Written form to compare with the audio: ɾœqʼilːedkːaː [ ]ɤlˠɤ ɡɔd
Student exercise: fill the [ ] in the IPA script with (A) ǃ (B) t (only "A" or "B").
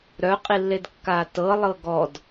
B